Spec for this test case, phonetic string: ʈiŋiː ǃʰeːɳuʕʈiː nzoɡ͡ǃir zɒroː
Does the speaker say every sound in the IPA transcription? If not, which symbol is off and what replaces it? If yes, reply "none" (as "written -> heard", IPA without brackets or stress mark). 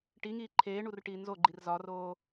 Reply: ʕ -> r